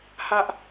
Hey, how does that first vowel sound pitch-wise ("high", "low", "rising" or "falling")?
high